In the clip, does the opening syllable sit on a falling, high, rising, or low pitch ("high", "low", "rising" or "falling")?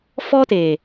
high